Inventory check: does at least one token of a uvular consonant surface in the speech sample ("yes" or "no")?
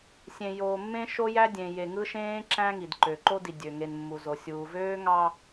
no